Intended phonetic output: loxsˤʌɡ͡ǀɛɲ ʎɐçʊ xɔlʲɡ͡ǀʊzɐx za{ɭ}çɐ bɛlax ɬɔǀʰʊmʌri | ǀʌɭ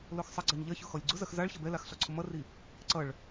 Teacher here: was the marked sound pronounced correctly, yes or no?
yes